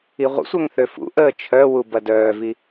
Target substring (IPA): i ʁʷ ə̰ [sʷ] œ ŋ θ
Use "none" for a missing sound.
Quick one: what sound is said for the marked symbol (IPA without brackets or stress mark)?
sʷ